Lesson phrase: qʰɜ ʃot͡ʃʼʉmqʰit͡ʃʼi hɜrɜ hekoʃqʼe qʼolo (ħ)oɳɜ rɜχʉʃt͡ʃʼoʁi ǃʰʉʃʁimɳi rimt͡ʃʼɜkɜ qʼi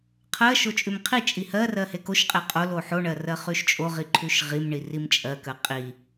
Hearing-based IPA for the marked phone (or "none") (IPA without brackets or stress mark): ħ